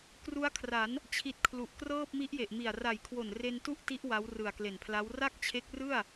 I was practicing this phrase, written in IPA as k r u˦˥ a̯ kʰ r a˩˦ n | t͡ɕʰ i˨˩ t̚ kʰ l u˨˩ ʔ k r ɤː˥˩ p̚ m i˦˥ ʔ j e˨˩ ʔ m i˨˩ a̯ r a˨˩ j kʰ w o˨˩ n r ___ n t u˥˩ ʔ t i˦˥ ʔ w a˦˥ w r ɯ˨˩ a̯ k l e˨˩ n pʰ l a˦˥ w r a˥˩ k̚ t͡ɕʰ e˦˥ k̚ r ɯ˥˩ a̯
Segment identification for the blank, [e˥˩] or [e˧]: e˧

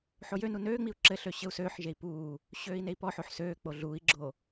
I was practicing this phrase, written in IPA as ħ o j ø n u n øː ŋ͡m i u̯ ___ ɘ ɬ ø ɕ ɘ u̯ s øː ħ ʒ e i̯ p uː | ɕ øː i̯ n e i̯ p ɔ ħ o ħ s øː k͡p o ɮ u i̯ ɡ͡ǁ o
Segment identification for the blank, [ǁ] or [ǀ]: ǁ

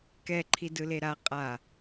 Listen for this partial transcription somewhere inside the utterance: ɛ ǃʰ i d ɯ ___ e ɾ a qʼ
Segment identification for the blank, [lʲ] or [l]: l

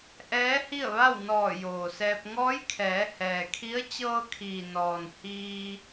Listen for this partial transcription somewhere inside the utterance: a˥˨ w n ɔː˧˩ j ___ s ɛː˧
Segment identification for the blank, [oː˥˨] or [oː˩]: oː˩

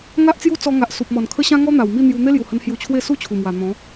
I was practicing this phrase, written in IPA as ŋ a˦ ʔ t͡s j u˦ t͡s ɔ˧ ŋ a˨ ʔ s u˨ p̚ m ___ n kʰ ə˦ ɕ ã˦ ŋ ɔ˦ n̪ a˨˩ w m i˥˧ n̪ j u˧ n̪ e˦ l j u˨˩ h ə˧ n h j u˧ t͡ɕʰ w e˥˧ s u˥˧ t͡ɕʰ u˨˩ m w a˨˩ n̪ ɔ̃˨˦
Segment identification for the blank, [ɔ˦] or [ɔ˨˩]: ɔ˨˩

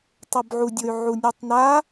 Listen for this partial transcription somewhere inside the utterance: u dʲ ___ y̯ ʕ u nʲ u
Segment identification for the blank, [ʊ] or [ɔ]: ʊ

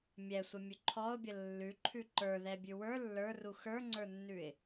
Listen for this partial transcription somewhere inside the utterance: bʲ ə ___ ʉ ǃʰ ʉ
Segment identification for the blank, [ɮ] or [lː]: lː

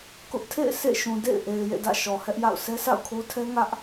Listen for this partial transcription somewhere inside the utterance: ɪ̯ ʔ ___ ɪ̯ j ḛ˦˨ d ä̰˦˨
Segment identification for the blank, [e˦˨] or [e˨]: e˨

